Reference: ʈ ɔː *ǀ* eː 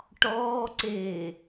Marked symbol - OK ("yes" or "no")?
yes